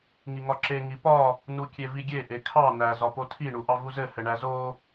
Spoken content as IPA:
ŋ i ŋ ɒ ǁ e ŋ i p ɒ | n u kʲ e v i ɡʲ e ʔ e kʰ ɑ n æ z ɒ p o tʰ i ɳ u ʔ ɑ v u z ɘ h ɘ ɳ æ z o

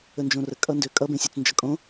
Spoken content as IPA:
ə n d͡ʒ õ r ə kʼ ʌ n d ø kʼ ʌ b ẽ sʲ ø t͡s n d͡ʒ ʌ kʼ õ

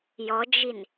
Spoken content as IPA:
j ɔ d͡ʒ i n

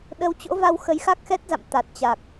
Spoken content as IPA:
ɗ ə˨˦ w t͡ɕ o̰˧˥ v a˧ w x ə˨˦ j x a˦˥ k̚ x ɛ˦˥ t̚ z a̰˧˨ m t̪ a˨˩ t̚ t͡ɕ a˨˩ k̚

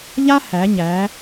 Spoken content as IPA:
ʎ a˥ h æ˩˧ ɲ æ˩˧

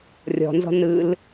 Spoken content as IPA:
rʲ ɔ̤ n z ɔ̤ n ɯ l

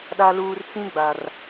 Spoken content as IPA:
ɗ a˨ l uː˨ r t͡s ĩ˦ ɡ͡b a˨ r

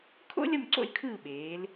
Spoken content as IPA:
kʰ o̰˥ lʲ ʌ˦˨ m ǀ o̰˦˨ lʲ kʰ ɯː˦˨ ɓ eː˩˧ l

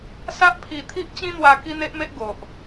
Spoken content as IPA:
s a˦ ʔ pʰ i˧ t̪ʰ i˦ ʔ t͡ɕ ĩ˦ n̪ w a˧ k i˦ n̪ e˦ ʔ m e˦ ʔ ɡ o˨ ʔ

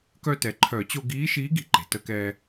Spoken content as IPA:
k œ˧ t ɛ˩ ǃʰ œ˨˩˦ t͡ɕ o˧ ɡ iː˧˥ ʃ iː˧˥ ɡ i̤˧ ǃ e̤˩ t ə˧ k ɛ˧

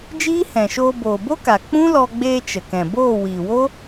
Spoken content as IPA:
d͡ʒ iː˦ h ɛ̃˨ ʃ oː˧ b oː˨ b o˦ k a˨ k͡p ũ˦ l ɔ˧ ɡ͡b eː˧ t͡ʃ ə˨ k ɛ̃˨ b oː˦˨ w iː˨ w o˦

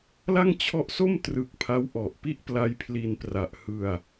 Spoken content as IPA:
l a˥˩ ŋ t͡ɕʰ ɔ˦˥ ʔ s o˥˩ m t r ɯ˨˩ k̚ pʰ a˦˥ w ʔ ɔ˨˩ ʔ p i˥˩ ʔ p l a˦˥ j pʰ l i˧ n p r a˨˩ ʔ h ɯ˧ a̯

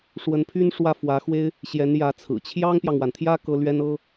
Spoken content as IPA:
ʂ w ə˧˥ n pʰ y˥ n ʂ w ä˥˩ f w ä˧˥ x w e˥ ɪ̯ | ɕ j ɛ˧˥ n j ä˧˥ t͡sʰ ɹ̩˨˩ t͡ɕʰ j ɑ˥ ŋ p j ɑ˨ ŋ w a˩ n t̪ʰ j ä˥ k ɤ˥ l ɥ ɛ˥ n ɤ˥

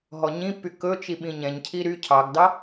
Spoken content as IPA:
ɦ ɔ ɲ ĩ pː y k ɵ t͡ʃ i ɓ ĩ ɲ ɛ̃ ɲ cʰ i ɾ y cʰ ɑ ɡ d ɑ

